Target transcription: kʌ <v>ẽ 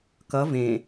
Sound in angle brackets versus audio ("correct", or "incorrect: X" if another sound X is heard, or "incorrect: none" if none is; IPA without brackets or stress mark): correct